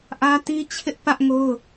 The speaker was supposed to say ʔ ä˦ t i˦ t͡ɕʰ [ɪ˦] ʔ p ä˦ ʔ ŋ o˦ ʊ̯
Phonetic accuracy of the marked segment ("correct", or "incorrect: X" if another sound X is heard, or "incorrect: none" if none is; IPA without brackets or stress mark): correct